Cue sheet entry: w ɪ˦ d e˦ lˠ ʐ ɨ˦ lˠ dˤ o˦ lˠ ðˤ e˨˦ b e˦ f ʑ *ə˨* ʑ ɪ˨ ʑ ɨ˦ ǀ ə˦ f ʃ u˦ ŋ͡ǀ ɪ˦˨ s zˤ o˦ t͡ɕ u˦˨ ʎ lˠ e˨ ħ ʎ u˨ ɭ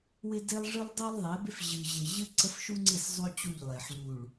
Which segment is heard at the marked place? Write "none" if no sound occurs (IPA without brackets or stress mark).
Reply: ɨ˨